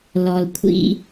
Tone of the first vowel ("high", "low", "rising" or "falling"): low